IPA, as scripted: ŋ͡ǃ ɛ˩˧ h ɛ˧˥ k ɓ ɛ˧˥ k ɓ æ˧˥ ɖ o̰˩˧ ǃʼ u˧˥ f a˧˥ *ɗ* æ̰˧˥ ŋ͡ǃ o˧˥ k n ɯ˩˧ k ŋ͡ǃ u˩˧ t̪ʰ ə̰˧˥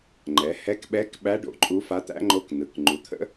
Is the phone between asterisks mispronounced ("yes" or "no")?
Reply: yes